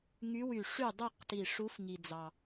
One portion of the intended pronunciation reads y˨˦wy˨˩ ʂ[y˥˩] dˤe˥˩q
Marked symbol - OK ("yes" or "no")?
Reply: yes